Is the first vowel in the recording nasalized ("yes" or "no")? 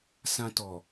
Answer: yes